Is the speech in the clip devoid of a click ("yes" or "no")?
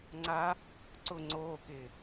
no